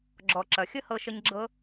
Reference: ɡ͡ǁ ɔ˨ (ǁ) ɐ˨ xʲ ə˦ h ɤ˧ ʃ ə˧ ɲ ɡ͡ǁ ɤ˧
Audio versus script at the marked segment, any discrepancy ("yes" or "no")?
no